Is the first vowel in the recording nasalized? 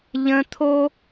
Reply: yes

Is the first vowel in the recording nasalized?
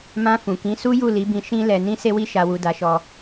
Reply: yes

